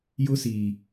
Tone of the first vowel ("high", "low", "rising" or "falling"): high